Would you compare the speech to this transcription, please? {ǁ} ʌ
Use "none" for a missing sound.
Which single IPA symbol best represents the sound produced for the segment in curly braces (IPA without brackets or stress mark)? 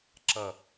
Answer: ǁ